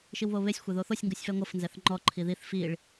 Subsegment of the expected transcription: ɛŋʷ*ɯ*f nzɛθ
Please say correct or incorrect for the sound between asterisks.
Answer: incorrect